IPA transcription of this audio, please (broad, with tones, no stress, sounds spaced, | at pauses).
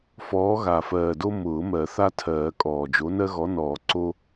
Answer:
f ɔː˨˥ ɣ a˨˩ f ɜː˨˩ d o˦ m ʊː˨˩˦ m ɜ˨˩˦ θ a˦ tʰ ɜː˨˩˦ kʼ ɔː˨˩ d͡ʒ o˨˥ n ɜ˦ ɣ ɔ˨˥ n ɔː˨˩˦ ǀ o˦